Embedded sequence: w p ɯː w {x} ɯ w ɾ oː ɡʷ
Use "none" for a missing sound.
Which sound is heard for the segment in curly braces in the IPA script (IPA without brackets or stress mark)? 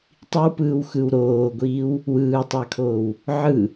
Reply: x